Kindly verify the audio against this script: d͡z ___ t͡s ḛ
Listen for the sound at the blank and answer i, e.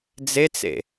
e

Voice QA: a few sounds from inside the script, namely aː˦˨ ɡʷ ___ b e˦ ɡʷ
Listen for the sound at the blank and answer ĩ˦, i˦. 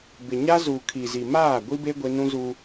i˦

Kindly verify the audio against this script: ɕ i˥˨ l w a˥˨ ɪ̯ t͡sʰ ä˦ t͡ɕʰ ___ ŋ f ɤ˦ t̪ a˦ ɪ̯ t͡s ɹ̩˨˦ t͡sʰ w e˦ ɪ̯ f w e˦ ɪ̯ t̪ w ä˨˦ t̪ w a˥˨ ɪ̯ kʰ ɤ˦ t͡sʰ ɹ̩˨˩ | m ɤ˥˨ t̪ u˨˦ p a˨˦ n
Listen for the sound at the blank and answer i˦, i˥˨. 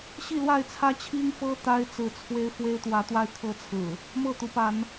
i˦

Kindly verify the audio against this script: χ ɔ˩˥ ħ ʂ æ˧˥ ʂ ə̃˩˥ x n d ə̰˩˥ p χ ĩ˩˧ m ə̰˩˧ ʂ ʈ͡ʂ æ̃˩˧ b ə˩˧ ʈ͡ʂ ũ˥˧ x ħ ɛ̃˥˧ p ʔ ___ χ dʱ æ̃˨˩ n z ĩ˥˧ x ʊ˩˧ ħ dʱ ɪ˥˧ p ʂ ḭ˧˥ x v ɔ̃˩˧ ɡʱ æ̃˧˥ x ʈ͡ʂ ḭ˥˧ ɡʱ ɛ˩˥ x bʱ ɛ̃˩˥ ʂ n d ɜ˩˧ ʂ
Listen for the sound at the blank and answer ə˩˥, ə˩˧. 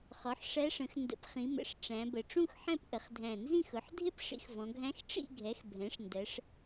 ə˩˧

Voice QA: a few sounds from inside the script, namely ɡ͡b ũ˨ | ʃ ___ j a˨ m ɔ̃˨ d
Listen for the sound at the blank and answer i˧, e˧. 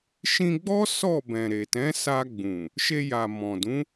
e˧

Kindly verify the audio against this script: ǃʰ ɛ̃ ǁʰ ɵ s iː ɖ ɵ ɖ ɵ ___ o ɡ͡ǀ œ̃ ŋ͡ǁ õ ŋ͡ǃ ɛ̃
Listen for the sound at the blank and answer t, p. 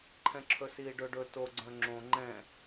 t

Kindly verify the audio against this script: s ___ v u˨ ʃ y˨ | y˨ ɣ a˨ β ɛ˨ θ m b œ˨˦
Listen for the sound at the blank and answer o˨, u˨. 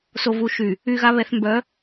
o˨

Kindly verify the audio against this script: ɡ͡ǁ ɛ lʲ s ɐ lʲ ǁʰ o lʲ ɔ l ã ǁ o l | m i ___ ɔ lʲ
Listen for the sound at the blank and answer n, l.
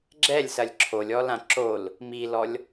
l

